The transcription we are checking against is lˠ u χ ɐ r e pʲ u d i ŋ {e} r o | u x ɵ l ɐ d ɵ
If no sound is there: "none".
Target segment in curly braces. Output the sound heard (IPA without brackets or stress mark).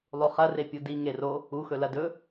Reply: e